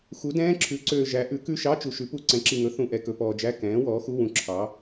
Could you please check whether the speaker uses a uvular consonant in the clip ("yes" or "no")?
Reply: no